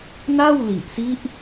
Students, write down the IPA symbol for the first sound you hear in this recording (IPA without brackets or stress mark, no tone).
n